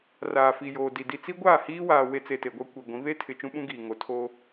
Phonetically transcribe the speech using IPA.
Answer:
r aː˨ f i˨ j oː˨ d i˨ d i˨ t͡s i˦ ɡʷ aː˦˨ h iː˦ w aː˨ w e˦ t͡s e˨ t e˨ ɡʷ a˦ kʷ i˨ ɡʷ ĩ˨˦ β e˦ tʰ ɪ˨ t͡ʃ ũ˦ ɓ ũ˦ ɡ iː˨ ŋ o˨ tʰ oː˦

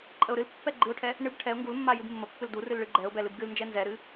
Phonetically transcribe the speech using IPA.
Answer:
ǃʼ ə ʊ̯ ɾ ɨ l pː ɛ ɡ͡ǃ ɨ ʊ̯ ʈʰ ɛ | ɳ ɨ b ʈʰ ɛ ʊ̯ ŋ ɡ u l mː a j ɨ b mː ə pː ɨ l d u r ɨ l ɭ ɨ ɡ͡ǃ ɛ ʊ̯ b ɛ l ɨ b ɡ ɨ l n d͡ʒ ɛ n z ɛ ɾ ɨ

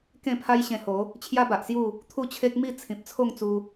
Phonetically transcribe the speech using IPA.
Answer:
k ẽ˥˧ pʰ a˦ j ɕ ẽ˧ h o˨˦ | t͡ɕʰ j a˦ b a˨ ʔ s j u˥˧ | t̪ʰ u˥˧ t͡ɕʰ e˦ k̚ m i˥˧ t͡sʰ ĩ˨ p̚ t͡sʰ o˥˧ ŋ t͡s u˧

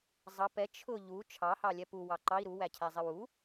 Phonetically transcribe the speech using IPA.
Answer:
zˤ ʌ p ɛ t͡ʃʰ ʊ ʎ u t͡ʃʰ ɑ h ɑ lʲ ɛ p u w ɑ ǃ ɑ i̯ ɾ u w æ cʰ æ zˤ ɪ w u

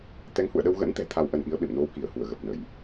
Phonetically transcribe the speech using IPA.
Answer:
t̪ ɛ˨˦ ŋ h ṵ˧˨ ə̯ ɗ ə˧ w ɣ ə̰˧˥ n t̪ ɛ̤˨˩ t̪ʰ a˧ w ʔ ə˧ n ʔ i˨˦ ə̯ ɓ ḛ˧˨ m n o˧ w k i˧˩ ə̯ h u˧˩ ə̯ ɣ ə˨˩ p̚ n ə˧˩˨ j

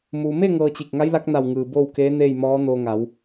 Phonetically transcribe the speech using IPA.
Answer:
m uː˩ m e˥˨ ŋ ɤː˧ t͡ɕ i˧˩ k̚ ŋ a˧˥ j l a˧˥ k̚ n a˧˩ w ŋ ɯː˩ b oː˥˨ w k eː˧˥ n eː˥˨ j m ɔː˧˥ n o˧ ŋ a˩˧ w

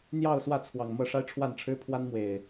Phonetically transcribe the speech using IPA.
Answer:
n̪ j ɑ˥˨ ʊ̯ s w ä˥˨ t͡sʰ w ɑ˨˩ ŋ m ɤ˥˨ ʂ a˦ ɪ̯ ʈ͡ʂʰ w a˥˨ n ʈ͡ʂʰ ɻ̩˦ pʰ w a˦ n m w e˨˩ ɪ̯

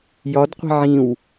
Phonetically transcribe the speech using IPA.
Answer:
j ɒ d qʷ i̤ ʕ ĩ w

